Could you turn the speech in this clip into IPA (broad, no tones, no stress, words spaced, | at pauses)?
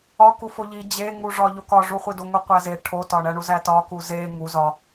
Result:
ɒ kufoʎi d͡ʑeŋuʐɒ ʎokɒʐuχʷi doŋoqʷæze ʈʰotɒɳæɳu zætɒku ze ŋu zɒ